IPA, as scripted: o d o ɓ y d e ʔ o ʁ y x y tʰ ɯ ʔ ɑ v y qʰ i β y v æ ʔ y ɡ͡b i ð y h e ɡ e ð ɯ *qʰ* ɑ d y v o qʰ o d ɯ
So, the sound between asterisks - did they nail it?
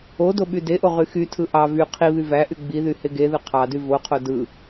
yes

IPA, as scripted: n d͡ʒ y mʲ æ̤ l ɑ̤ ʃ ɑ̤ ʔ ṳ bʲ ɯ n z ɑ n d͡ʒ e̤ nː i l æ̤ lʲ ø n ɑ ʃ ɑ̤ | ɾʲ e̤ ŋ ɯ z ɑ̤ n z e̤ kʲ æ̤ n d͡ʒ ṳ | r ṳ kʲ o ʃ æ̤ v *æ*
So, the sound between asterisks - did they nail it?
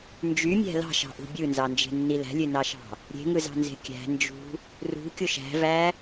yes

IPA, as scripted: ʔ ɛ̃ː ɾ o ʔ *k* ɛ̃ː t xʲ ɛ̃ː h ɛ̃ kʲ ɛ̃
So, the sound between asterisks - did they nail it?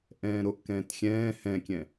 yes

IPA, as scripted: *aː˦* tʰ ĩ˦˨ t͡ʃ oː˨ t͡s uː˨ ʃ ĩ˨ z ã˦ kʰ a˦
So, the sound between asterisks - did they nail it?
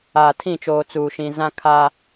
no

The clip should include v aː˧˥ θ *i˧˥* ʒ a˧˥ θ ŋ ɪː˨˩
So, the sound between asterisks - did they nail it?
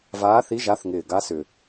yes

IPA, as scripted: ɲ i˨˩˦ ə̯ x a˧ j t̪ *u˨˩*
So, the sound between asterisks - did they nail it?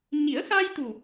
yes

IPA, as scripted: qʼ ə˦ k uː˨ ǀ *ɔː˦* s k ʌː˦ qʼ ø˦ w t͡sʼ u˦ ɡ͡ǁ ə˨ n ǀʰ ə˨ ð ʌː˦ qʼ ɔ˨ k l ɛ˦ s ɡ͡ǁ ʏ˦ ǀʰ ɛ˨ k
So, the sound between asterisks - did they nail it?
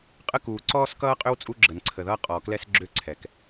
yes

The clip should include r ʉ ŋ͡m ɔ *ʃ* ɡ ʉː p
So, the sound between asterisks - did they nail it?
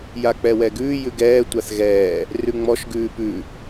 yes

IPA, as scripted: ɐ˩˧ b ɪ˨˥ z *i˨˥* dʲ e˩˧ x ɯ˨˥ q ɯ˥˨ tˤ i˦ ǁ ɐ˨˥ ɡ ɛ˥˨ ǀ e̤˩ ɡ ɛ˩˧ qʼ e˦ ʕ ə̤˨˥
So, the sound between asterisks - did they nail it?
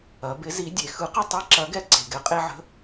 yes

